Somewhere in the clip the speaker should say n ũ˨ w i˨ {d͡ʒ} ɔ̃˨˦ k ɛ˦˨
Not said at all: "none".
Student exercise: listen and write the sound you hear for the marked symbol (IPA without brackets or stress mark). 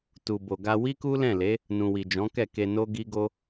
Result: d͡ʒ